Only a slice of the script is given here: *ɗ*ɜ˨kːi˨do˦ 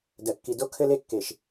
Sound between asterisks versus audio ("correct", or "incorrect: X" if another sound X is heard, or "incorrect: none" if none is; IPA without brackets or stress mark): incorrect: d